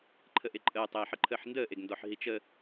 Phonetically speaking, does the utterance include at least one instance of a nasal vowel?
no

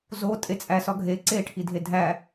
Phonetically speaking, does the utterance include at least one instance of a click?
yes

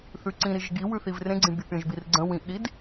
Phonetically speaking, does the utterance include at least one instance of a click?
yes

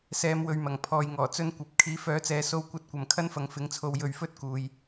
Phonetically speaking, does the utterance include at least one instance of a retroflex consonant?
no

